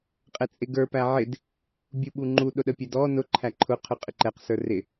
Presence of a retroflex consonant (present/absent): absent